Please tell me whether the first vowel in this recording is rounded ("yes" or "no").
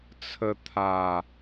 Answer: no